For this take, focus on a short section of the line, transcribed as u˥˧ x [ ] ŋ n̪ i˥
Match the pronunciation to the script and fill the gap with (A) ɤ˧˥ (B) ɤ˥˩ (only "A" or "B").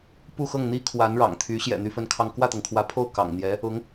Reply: B